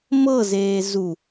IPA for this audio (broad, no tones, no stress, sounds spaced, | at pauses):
m ɤ z eː z u